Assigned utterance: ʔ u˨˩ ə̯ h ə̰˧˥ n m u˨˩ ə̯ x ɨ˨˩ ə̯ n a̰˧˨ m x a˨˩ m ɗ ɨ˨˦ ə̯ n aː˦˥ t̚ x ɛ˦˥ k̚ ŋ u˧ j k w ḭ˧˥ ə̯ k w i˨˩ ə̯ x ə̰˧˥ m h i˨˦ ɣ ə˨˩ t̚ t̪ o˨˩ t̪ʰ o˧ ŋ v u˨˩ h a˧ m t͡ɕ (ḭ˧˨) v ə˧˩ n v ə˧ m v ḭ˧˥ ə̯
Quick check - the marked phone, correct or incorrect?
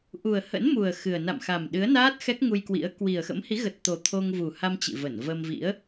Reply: correct